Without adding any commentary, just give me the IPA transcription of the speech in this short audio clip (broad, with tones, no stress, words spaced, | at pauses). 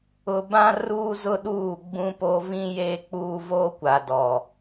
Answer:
ʊ˨bã˦ ruː˦zʊ˦ɗuː˦˨ ɡ͡bũ˦po˦ vĩ˦jeː˦k͡puː˦ voː˦kʷa˨ dɔ˨